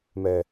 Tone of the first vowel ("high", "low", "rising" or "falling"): low